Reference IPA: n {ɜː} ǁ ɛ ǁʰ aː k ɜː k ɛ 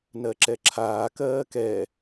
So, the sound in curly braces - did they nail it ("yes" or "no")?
no